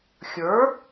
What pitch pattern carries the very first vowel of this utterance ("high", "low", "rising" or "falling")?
rising